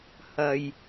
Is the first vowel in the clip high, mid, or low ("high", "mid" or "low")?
low